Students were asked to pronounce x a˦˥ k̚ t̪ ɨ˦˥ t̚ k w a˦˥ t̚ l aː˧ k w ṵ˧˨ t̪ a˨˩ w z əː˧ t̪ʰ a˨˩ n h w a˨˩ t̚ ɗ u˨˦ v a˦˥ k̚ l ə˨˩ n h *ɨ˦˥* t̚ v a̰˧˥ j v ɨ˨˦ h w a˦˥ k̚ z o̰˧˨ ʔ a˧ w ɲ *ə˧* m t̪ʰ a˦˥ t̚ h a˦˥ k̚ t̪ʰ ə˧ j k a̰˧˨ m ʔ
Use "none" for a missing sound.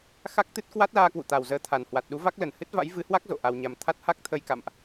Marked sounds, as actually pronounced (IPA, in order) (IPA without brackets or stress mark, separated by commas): ɨ˦˥, a˧